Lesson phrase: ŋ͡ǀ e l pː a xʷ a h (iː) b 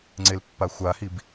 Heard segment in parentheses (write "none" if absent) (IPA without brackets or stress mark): i